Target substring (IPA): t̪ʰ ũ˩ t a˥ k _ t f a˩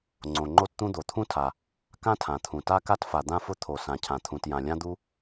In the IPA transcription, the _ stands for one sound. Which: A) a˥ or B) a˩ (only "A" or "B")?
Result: A